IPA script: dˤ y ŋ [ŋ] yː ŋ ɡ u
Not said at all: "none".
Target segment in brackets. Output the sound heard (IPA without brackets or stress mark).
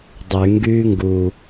ɡ